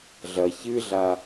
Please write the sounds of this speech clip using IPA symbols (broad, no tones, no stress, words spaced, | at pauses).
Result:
ɮɐ çɨɮa